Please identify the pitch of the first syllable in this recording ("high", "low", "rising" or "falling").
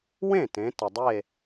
falling